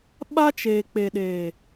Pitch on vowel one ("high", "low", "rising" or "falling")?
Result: high